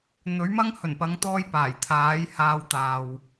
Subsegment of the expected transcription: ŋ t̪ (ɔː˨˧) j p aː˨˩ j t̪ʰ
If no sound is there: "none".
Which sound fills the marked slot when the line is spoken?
ɔː˧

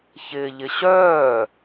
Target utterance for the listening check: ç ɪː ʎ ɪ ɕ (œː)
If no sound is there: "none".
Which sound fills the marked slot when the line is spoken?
œː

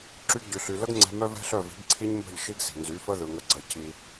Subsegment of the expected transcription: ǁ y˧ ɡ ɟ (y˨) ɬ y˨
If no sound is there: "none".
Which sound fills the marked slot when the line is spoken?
y˨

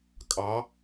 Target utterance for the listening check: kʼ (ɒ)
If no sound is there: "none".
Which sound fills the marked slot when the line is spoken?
ɑ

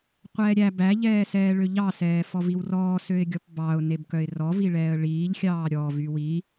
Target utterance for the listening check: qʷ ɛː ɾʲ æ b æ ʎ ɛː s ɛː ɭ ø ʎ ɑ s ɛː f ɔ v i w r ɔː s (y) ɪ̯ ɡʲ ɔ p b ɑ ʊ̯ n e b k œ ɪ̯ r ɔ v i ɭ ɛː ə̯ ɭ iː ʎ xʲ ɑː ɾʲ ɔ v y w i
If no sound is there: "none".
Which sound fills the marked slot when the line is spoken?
ø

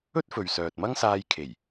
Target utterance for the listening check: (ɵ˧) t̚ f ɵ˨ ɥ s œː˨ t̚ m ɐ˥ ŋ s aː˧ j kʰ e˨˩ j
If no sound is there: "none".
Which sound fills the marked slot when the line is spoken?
ɵ˥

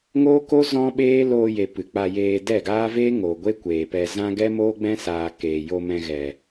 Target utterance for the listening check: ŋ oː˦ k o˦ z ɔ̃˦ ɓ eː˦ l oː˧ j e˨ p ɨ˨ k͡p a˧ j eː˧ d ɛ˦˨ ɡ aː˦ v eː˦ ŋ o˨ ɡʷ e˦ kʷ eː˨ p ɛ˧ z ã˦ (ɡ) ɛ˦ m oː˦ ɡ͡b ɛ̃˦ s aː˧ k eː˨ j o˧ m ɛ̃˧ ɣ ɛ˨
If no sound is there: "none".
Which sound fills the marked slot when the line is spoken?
ɡ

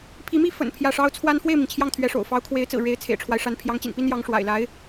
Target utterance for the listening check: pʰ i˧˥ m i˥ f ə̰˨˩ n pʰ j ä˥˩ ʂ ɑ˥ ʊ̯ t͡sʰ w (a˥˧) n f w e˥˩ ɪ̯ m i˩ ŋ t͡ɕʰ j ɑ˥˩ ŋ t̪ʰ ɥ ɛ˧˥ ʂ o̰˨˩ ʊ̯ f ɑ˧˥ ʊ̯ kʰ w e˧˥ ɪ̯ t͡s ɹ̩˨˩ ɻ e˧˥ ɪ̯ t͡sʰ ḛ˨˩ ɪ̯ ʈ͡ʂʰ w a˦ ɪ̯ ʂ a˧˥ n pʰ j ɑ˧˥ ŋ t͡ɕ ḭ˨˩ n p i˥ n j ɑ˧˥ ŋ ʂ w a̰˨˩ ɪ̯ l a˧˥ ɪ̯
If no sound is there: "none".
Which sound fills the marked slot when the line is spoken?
a˥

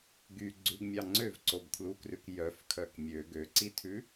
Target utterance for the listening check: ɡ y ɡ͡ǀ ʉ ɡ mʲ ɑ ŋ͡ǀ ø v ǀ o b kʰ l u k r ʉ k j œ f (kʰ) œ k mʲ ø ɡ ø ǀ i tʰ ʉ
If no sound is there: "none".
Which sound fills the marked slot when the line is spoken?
kʰ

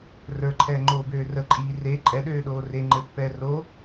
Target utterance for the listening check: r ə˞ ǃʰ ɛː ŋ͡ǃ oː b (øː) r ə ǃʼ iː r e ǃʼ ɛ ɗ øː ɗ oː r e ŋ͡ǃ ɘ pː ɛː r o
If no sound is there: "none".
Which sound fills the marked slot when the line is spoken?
øː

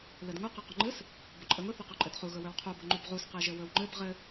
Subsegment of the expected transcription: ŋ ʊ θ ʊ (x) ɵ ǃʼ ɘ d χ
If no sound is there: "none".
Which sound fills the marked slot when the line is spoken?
q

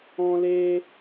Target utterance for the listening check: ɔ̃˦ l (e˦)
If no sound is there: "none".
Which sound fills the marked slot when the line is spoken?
e˦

